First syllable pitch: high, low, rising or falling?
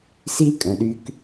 high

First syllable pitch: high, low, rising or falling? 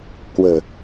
low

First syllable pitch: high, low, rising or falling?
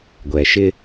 low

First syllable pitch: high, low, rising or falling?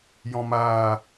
low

